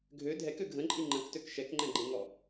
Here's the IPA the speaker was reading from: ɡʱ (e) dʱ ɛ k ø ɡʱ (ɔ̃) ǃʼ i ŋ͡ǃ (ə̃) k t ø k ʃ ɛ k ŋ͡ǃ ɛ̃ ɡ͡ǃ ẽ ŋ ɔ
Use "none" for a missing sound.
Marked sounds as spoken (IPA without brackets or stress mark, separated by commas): ø, ə̃, ə̃